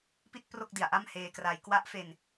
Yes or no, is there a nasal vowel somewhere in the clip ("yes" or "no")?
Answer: no